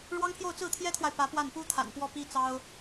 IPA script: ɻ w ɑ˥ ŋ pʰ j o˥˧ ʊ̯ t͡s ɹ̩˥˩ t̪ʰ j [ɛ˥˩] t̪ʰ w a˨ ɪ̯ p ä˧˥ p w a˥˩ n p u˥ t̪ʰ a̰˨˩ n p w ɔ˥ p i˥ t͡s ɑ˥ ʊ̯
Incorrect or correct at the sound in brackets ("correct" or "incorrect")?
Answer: incorrect